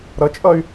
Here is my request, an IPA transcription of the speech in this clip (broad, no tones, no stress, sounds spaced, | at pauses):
ɾ ʌ t͡ʃʼ ʌ y̯